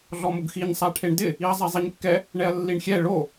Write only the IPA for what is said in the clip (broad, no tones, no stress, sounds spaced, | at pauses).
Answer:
ɮ ɔ m ʊ ɡ x i ɲ sˤ a ʈʰ e ɳ d ɪ | i ɐ̯ zˤ ɛ zˤ i ɲ kː ɛ | ɳ ɛ ɐ̯ lː i ɳ xʲ ɛ ɭ o